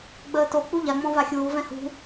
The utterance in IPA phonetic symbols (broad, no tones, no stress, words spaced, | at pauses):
ɡ͡bəːto k͡puʎaŋ͡mɔ̃ vaxʲuːvɛ̃ hṳ